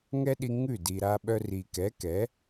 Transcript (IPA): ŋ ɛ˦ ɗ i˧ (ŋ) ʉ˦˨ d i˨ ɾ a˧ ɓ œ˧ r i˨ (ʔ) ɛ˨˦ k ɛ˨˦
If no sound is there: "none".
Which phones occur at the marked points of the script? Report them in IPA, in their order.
ŋ, k

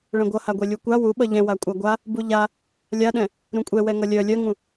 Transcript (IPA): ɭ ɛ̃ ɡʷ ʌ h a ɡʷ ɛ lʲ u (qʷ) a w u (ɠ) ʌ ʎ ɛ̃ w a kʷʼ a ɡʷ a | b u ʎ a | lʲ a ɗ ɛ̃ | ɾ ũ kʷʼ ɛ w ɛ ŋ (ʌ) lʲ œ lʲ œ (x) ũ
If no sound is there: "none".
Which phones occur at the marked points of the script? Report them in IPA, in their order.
kʷ, ɓ, ʌ, ŋ

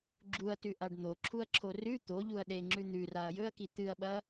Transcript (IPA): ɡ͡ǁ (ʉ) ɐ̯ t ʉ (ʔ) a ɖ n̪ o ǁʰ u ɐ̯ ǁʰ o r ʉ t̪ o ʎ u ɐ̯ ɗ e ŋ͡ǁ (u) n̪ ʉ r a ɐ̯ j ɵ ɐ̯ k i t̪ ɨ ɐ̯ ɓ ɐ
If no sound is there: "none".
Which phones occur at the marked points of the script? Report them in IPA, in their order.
u, ʔ, ʉ

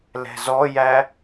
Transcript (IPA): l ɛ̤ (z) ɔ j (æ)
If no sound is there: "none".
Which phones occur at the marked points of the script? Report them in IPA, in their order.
z, æ

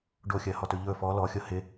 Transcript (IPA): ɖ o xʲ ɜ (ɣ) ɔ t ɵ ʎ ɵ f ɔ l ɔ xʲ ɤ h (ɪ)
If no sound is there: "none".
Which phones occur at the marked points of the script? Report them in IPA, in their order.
h, ɪ

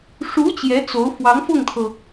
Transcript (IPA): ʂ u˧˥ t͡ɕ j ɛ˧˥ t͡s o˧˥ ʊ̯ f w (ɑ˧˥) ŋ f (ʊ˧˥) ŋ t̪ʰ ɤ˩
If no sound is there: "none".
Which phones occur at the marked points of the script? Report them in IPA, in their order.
ɑ˧˥, ʊ˥˩

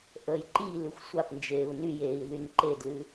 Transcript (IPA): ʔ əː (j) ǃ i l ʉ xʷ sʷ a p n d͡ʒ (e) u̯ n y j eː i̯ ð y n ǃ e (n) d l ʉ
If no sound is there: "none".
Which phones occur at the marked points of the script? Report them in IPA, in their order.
j, eː, none

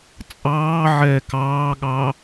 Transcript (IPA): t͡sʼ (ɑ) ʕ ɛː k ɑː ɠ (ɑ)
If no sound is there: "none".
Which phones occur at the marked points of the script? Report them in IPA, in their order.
ɑː, ɑː

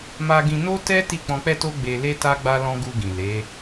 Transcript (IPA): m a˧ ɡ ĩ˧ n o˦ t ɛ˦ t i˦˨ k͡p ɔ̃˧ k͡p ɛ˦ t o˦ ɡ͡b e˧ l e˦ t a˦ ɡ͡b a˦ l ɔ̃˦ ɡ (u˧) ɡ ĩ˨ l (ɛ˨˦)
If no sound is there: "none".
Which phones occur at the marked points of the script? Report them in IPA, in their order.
u˧, e˨˦

